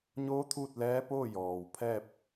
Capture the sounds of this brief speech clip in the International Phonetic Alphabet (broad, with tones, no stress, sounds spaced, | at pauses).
ɲ oː˧˥ t̪ʰ uː˥˨ t̚ l ɛː˧˥ p oː˥˨ j ɔː˩ w pʰ ɛː˥˨ p̚